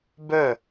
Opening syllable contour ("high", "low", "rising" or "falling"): falling